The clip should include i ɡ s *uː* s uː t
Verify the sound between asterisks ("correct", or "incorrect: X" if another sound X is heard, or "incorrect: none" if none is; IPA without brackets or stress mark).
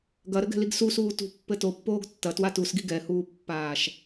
incorrect: u